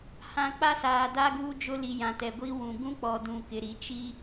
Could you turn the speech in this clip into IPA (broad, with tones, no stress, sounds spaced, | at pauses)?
h ã˨ k͡p a˦ s aː˨ d a˦ ɡ uː˦ d͡ʒ ʊ˦ l i˨ j ã˨ t ɛ˨ ɡʷ i˦ w ũ˨ ɡ ũ˦ k͡p ɔ˨ d ũ˨ k ɪ˨ ɾ i˨ t͡ʃ i˦